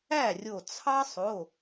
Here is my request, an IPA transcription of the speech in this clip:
æ˥˩ rʲ o˧˩ t͡sʰ ɑ˦ sˤ o˩˧˩

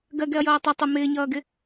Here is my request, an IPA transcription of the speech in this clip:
ɡ ɜ ɡ ɛ ɐ̯ j ʌː tˤ ʌ tˤ ɪ m ɪː ɲ ʌː ɡ ɪ

